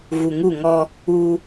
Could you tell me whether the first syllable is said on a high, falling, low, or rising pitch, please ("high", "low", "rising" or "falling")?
low